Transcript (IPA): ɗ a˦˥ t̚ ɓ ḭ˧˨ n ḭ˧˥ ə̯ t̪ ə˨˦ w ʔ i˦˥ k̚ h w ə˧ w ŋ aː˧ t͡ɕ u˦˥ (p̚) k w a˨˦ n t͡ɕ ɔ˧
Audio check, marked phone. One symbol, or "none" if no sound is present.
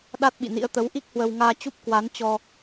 p̚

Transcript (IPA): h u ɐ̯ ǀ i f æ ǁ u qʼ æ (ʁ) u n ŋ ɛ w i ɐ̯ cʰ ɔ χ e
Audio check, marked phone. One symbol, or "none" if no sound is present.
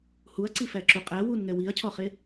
w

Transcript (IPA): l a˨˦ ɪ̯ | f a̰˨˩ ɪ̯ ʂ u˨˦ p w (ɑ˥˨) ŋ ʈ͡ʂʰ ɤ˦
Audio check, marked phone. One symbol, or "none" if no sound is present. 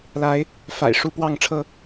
ɑ˥˨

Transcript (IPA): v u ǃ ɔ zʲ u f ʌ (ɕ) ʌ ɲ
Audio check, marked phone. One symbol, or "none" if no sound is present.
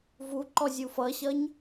ɕ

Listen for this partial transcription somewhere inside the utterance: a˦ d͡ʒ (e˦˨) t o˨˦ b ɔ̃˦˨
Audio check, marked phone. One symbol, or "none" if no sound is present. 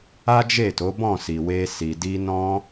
e˦˨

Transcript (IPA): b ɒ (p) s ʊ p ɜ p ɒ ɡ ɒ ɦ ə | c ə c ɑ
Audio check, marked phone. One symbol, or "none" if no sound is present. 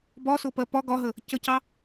none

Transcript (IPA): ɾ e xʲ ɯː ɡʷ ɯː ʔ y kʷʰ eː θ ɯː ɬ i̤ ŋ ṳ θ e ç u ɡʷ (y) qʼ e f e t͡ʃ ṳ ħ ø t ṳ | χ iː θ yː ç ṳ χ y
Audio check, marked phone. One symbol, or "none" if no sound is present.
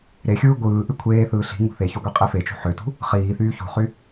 e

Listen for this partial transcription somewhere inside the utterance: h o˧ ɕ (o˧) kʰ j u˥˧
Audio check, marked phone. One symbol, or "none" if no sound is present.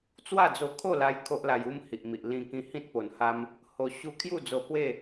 u˧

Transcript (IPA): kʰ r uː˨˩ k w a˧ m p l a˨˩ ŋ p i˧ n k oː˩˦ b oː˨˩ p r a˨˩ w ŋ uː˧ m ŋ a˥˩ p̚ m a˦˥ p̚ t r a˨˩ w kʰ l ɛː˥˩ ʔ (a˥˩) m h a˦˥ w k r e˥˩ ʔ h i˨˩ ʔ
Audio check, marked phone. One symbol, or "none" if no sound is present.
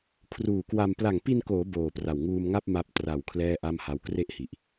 a˥˩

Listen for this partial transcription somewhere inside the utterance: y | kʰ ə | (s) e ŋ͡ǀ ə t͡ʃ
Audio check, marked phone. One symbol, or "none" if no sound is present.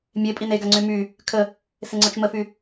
s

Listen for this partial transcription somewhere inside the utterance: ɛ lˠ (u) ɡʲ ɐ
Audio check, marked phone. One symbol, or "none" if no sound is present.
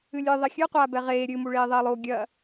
o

